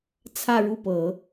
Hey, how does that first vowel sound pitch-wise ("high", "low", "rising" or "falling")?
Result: falling